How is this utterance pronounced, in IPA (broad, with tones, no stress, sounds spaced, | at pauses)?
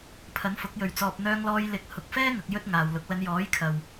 pʰ ɐ˨˥ n f ʊ˨˥ k̚ j ɵ˨ ɥ t͡s ɔː˨ p̚ n̪ œː˧ ŋ l ɔː˧ j l ɪ˨˥ k̚ h ʊ˨ k̚ f ɛː˥ ŋ ɐ˧ k̚ j ɵ˥ t̚ ŋ aː˨ w l ʊ˨˥ k̚ l ɐ˨˧ n j ɔː˨˥ j kʰ ɐ˨ w